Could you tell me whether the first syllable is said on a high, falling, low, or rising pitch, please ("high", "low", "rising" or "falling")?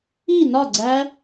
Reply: falling